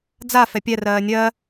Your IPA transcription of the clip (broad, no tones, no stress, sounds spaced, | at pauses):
d͡z a f ɛ pʲ ɛ r ɜː nʲ ɜ